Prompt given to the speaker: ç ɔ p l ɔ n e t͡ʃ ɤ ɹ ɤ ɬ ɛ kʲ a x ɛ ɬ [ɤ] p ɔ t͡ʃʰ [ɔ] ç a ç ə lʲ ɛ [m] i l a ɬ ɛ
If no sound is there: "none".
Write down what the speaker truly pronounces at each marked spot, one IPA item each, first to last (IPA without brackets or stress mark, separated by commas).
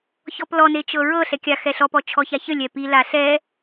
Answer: ɔ, ɔ, p